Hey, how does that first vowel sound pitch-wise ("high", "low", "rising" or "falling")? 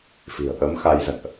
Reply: low